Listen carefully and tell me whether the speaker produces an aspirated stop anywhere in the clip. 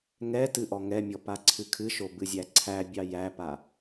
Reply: yes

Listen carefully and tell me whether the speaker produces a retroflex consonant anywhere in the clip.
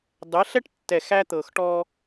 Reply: yes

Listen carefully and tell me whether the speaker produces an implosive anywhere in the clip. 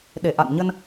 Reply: yes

